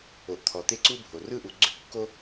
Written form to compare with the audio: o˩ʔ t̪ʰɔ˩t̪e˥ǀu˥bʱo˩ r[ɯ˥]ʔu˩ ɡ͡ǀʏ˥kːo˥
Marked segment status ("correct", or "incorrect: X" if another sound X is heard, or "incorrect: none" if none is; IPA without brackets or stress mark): correct